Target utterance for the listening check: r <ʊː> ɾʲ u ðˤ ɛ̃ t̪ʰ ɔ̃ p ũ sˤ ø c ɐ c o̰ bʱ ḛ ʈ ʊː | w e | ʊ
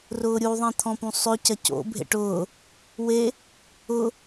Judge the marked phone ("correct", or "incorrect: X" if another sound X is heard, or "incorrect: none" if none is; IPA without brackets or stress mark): correct